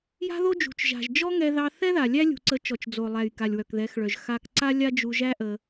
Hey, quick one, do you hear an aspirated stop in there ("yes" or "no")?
no